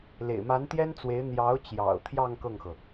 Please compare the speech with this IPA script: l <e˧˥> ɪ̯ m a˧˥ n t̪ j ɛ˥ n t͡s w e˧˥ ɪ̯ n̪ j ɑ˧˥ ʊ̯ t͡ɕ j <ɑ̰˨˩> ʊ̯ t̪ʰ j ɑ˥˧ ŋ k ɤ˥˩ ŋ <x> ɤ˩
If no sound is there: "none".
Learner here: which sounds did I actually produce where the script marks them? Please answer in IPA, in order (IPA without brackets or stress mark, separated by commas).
ḛ˨˩, ɑ̰˨˩, x